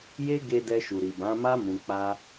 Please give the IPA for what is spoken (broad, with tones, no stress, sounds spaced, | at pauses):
j e˦ ɡ e˧ d ɛ˧ ʃ u˨ ɾ i˨ b ã˨˦ m a˦ m ũ˧ k͡p a˦